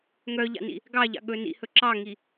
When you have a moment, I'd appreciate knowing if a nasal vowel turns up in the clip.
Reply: no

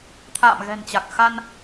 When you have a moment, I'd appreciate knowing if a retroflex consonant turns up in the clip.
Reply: no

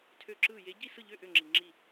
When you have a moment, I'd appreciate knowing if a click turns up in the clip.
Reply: yes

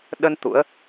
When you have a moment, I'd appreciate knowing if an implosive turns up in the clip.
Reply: yes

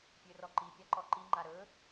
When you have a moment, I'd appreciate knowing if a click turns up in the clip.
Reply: yes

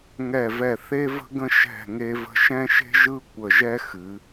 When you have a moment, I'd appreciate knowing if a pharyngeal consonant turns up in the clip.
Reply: no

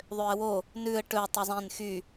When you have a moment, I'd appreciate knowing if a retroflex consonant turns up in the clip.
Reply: yes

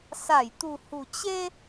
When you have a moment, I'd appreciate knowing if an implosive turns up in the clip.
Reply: no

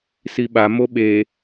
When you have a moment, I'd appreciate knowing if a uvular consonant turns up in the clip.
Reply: no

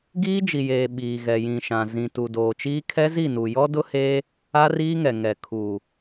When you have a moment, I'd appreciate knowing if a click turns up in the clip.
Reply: no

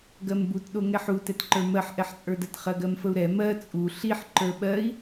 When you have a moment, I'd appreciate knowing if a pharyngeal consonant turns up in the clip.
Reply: yes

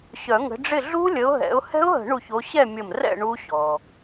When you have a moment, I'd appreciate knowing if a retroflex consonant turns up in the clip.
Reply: yes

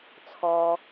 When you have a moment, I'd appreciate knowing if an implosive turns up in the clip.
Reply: no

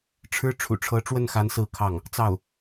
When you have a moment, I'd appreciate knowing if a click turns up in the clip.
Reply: no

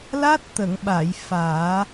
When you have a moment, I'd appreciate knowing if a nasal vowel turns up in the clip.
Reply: no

